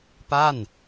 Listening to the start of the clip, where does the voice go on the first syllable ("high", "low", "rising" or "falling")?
falling